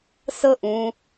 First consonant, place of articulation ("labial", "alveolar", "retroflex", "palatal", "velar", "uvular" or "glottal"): alveolar